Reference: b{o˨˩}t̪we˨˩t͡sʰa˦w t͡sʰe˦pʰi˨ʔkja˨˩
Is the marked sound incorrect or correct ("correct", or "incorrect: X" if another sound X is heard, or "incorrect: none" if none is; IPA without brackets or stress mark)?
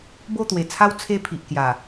incorrect: o˥˧